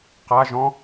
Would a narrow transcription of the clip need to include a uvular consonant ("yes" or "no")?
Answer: yes